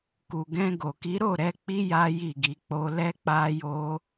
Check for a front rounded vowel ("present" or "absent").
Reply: absent